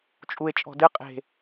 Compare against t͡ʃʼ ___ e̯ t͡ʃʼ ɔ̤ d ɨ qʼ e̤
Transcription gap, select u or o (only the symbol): u